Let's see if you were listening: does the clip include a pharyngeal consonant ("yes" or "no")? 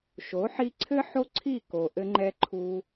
yes